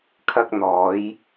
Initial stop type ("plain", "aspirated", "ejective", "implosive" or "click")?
aspirated